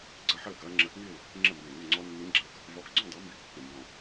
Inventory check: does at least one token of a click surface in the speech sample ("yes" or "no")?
yes